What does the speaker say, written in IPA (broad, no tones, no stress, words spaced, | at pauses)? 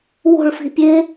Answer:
wo̤ɭfi̤ pʲe